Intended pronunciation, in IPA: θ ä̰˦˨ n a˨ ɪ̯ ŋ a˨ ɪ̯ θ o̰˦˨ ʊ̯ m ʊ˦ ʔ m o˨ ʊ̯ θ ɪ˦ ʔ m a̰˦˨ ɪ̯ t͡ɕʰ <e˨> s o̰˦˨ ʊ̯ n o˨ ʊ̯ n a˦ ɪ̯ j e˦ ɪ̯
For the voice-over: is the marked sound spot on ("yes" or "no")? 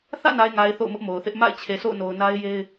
yes